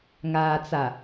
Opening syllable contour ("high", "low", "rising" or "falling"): low